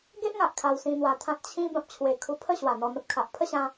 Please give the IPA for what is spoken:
ɡe˦ʔŋa˨ʔ kʰa˧wsĩ˧n̪wa˧t̪ʰã˦t̚ t͡ɕʰĩ˧ bã˨p̚t͡ɕʰwe˨˩kʰu˧ pʰə˥˧ ɕwa˨˩n̪ɔ˧n̪ə˦p̚kʰa˨ʔ pʰə˥˧ɕã˧

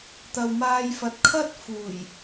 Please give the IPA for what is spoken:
t̪ɐ˨wmaː˧jfɐ˨t̚ kʰɐ˥t̚ fuː˨˩j

